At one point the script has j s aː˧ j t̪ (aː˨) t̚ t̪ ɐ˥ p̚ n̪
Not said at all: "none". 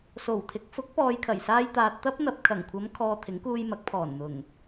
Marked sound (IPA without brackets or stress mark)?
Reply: aː˨